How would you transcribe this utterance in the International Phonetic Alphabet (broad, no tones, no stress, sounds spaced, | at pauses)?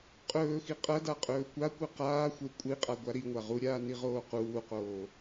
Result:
qʼ ɵː x i qʼ ɐ d a qʼ ɵː kʷ a kʷ ɨ q aː xʷ e kʷʼ i qʼ a ɡʷ a ɾ i ŋʷ a ʁ u ɾʲ aː n i ʁ oː q uː q oː